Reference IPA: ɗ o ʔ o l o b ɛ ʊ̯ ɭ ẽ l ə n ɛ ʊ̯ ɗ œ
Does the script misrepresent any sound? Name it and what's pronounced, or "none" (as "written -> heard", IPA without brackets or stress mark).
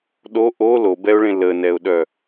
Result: none